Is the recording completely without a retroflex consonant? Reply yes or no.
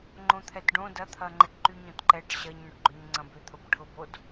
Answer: no